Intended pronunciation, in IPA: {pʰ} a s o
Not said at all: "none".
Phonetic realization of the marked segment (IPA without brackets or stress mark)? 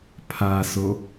pʰ